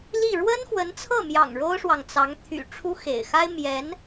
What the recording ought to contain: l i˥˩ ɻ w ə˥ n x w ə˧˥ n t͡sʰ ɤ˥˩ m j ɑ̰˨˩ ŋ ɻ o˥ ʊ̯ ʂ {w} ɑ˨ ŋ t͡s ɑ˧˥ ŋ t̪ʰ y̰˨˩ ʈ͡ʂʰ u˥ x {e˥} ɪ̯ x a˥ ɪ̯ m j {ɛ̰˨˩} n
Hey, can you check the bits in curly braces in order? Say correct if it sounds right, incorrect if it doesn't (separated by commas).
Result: correct, incorrect, incorrect